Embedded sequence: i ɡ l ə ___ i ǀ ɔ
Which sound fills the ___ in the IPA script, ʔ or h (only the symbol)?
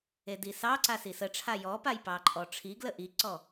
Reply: ʔ